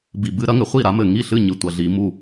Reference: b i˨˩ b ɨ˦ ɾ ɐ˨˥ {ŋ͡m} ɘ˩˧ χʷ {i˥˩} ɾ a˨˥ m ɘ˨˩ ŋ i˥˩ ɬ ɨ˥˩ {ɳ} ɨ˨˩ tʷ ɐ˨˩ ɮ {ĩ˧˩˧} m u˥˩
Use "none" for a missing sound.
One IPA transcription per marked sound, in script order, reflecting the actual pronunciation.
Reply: ŋ, i˥˩, ɲ, i˧˩˧

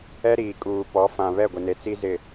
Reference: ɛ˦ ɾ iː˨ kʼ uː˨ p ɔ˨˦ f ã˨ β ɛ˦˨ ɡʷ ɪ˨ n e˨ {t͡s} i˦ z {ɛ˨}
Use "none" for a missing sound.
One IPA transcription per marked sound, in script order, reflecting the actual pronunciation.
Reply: t͡s, ɪ˨

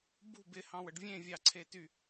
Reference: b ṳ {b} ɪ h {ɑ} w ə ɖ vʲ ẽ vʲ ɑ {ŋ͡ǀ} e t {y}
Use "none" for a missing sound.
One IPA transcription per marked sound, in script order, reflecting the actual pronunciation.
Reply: b, ɑ̃, ǀʰ, y

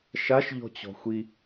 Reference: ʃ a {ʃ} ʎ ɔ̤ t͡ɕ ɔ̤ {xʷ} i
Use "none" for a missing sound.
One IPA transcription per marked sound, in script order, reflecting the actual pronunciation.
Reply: ʃ, xʷ

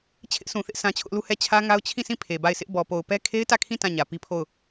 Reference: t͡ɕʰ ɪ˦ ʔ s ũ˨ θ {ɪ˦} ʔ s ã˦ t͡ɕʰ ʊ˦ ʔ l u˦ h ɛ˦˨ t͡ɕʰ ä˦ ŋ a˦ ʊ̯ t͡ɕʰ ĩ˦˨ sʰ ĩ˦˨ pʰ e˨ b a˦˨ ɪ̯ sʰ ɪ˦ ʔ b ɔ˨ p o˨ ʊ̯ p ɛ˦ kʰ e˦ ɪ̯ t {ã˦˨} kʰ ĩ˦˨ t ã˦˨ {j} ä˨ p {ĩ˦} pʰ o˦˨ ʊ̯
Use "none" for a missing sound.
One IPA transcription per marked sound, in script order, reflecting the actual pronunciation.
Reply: ɪ˦, ä˦˨, ɲ, i˦

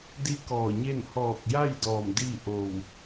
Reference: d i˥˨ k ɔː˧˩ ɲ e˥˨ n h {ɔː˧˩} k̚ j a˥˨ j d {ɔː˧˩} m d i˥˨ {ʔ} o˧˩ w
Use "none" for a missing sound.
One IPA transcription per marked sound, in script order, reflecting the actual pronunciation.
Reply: ɔː˧˩, ɔː˧˩, ʔ

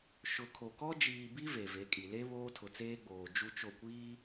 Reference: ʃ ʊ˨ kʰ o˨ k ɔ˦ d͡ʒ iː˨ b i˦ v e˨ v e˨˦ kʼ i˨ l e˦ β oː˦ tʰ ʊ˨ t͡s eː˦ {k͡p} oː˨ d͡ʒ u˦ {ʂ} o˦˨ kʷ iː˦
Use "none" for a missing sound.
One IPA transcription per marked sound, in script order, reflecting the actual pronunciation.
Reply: ɡ͡b, t͡ʃ

